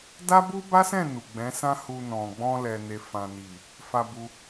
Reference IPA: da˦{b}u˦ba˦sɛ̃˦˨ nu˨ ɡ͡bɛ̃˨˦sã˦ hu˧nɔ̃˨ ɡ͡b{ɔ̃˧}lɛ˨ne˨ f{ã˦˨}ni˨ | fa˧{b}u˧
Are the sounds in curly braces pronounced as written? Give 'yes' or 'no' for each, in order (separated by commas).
yes, yes, no, yes